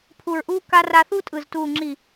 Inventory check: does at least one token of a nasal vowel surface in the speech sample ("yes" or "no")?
no